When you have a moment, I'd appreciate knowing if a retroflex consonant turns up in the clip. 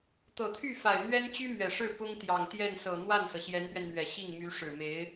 yes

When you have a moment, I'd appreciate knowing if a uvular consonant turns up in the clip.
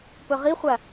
yes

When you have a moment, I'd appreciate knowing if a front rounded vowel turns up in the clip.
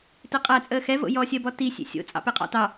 no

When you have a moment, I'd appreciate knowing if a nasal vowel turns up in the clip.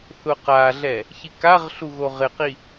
no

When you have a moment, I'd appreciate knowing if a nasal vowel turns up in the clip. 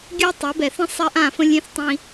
yes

